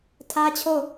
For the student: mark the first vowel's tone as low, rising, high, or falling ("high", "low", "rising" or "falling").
high